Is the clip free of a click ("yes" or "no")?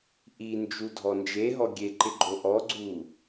no